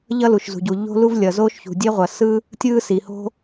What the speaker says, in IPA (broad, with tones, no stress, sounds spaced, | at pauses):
ʎ ʌ˥ l u˩ ʃ z ṳ˩ ɟ u˩ ʎ o̤˥ l u˥ v lʲ ʌ˩ z oː˥ ʃ ç ṳ˩ dʲ e˥ ʁʷ ʌ˩ s ɯ˥ | tʲ ɯː˥ s i˩ h o̤˥